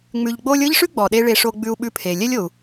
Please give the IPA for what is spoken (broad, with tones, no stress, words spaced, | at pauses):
ŋ͡mʉ˧ʎɡ͡bo˥lʲ ɤ˥ʎʂʉ˥ ɡ͡bɔ˩ɗe˧ ɭe˧ʂo˧ ɡ͡bʉ˧u̯ɓʉ˧ pʰe˩lʲɛ˥lʲo˩u̯